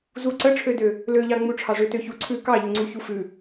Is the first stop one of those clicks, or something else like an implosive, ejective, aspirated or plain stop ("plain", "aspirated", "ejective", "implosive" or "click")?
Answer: click